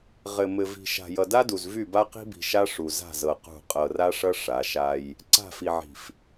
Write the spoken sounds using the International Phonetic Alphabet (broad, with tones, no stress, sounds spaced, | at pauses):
ʁ ɘ˨ m ɘ˨ v i̤˨ ʃ a̤˨ j ʌ˨ d a˦ d u˨ z v y˦˨ b a˦ q i̤˦ b i̤˨ ʃ a˦ ʂ u˨ z a̤˦˨ z ɤ˨ q ṳ˦˨ qʼ ɤ˨ r a˦ ʂ ʌ˦ ʂ a˨˦ ʃ a˦ j | ǀ a̤˦˨ f i˨ ʕ i̤˨ f